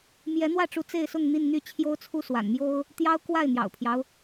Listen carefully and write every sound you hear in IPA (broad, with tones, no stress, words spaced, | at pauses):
mjɛ˧˥n̪wä˥˩ʈ͡ʂu˧˥ t͡se˥˧ɪ̯sʊ˥˧ŋn̪i˥˧n n̪y˥˩t͡ɕʰjo˥ʊ̯t͡sʰu˥ swa̰˨˩nmjo˥ʊ̯ | t̪jɑ˥ʊ̯ kwa˥˩ɪ̯n̪jɑ̰˨˩ʊ̯pʰjɑ˦ʊ̯